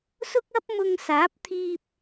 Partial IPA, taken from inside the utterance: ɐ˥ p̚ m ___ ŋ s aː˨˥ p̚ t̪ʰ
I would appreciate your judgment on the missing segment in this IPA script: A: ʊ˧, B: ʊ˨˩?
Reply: A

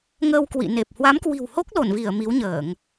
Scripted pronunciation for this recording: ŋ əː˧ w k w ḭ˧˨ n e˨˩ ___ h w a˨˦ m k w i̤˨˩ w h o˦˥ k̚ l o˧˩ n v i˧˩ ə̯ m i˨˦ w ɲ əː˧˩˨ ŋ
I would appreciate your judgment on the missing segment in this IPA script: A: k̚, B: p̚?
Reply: B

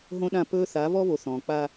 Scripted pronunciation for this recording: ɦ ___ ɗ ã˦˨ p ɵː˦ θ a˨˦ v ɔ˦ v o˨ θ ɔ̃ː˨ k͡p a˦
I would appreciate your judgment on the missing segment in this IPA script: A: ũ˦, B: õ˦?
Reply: B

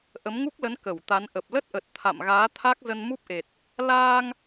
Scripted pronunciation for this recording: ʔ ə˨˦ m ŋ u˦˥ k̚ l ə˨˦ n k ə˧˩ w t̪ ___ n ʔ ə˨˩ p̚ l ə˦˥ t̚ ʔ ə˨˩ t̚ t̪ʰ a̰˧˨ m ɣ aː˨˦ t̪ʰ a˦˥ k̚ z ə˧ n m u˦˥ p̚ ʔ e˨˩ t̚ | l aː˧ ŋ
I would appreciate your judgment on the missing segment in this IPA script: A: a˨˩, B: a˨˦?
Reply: B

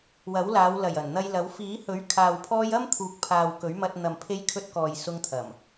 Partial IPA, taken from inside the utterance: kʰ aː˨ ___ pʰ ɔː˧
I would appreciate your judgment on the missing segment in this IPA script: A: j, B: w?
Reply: B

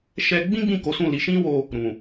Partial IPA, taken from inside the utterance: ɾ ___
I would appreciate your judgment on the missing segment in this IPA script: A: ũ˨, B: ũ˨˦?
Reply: A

